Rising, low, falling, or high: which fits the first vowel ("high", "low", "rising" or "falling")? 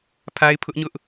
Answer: high